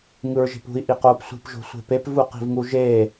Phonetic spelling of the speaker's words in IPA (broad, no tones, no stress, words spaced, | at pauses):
ŋɯɹʒe̤pṳi̯ ʔiqoːpsʷi̤p ʒo̤sʷe̤pep vuqi̤vŋuʒeː